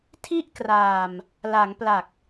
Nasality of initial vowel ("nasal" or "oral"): oral